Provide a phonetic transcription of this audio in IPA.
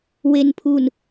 we˧npʰu˧n

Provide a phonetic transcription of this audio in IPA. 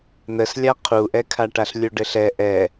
n̪əslʲa qʰuʔɛkʰaʈaɬ lʲuɖɘɬɛ ʔɛ

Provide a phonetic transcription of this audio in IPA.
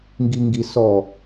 ŋɡiŋɡisɔ

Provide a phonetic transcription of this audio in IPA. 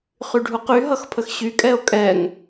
χyɖʱuqy ɦʌxpʰəxɕy kʼɛo̯kʼɛŋ

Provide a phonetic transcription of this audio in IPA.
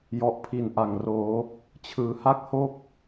jɔ˨˩ʔpʰi˩˦n ʔa˨˩ŋroː˩˦ | t͡ɕʰɯː˩˦ha˥˩k̚ho˥˩k̚

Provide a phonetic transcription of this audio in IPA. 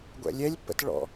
ɡʷɛ̰lʲɛlʲpːə̰t ɭɔ̰

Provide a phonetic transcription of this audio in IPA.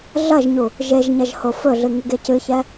ɮɐʒɲu | ʒeʒɲɐʒ hofɵɮɨ ŋɨɡecɨçɛ

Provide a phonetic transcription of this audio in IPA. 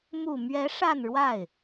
mu˨˩mɥɛ˧˥ ʂa˥˧nɻwa˥˩ɪ̯

